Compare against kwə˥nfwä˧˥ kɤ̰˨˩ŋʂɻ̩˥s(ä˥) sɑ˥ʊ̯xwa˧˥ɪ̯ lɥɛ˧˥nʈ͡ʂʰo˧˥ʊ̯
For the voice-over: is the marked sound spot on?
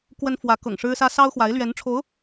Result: yes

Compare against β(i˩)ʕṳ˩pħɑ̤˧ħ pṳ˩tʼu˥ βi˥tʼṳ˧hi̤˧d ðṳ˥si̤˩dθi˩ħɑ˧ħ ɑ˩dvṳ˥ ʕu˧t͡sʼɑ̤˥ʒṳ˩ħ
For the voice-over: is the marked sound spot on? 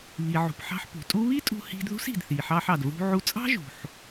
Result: yes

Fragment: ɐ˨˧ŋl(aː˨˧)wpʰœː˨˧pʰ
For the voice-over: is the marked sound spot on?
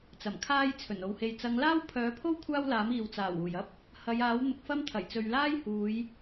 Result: no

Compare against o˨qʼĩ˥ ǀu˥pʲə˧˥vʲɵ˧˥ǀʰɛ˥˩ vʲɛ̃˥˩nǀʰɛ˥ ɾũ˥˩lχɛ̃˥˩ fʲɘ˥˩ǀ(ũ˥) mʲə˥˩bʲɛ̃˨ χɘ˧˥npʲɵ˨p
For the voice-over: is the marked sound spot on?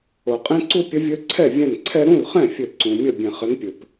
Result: no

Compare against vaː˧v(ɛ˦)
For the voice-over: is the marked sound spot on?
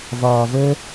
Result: yes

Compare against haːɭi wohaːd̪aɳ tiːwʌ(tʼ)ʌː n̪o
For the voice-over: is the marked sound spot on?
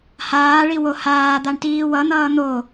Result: no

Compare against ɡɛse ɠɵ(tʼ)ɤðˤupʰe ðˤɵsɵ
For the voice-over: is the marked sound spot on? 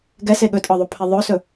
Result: yes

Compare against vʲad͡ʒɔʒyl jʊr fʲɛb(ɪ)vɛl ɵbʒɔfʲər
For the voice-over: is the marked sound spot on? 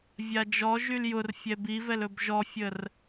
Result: no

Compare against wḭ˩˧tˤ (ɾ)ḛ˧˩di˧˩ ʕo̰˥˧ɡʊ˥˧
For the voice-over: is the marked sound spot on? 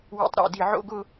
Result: yes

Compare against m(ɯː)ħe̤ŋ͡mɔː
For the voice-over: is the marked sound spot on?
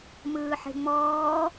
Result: yes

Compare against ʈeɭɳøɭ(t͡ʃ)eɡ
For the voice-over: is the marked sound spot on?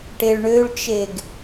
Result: yes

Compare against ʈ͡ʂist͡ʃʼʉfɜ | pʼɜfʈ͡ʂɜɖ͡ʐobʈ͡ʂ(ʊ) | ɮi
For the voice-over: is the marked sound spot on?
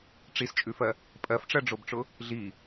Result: yes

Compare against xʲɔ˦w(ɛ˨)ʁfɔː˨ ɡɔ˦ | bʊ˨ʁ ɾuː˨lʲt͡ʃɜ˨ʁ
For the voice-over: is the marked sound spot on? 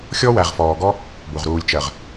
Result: no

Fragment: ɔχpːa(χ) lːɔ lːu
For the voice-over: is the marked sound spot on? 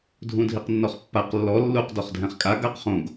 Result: no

